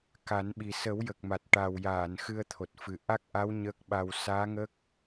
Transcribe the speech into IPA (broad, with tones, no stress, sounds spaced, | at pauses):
k a˨˩˦ n ɓ i˨˩ s ə˨˩˦ w j ə˨˩ k̚ m a˨˩ t̚ ʈ a˨˩ w j aː˨˩˨ n x ɨ˧ ə̯ t̪ʰ o˨˩ t̚ f ɨ˨˩ ʔ a˦˥ k̚ ʔ a˧˥ w ɲ əː˦˥ k̚ ɓ a˧ w s aː˧˥ ŋ ə˦˥ k̚